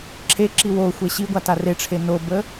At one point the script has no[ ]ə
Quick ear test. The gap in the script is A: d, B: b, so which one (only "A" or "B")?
B